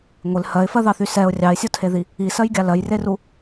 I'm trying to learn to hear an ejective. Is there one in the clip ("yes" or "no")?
no